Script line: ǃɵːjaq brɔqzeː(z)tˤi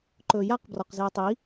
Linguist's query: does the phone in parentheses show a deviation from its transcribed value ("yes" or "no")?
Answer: yes